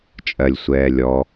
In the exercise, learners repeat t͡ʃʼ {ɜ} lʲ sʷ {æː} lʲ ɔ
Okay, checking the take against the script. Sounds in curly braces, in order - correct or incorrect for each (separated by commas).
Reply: correct, incorrect